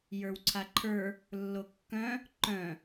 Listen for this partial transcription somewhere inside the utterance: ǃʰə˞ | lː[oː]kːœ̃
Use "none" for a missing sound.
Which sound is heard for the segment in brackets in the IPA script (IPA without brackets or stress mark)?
o